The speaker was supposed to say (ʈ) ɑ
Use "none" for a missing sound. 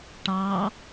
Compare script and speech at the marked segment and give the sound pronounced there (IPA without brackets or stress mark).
ʈ